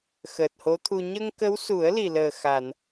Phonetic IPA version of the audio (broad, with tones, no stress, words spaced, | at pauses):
xəː˨˩t̚ho˧˥t̪ʰu˧ ɲə˧ŋkə˧˥wsu˨˩˦ə̯ li˨˩ləː˨˩ xa˨˩˨n